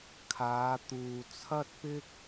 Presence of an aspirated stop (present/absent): present